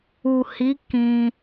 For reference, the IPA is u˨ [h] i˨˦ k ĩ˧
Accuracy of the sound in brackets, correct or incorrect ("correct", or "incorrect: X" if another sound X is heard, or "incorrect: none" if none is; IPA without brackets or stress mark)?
correct